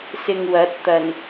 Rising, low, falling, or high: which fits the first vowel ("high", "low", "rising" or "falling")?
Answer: low